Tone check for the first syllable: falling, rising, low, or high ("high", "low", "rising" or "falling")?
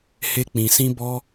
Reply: high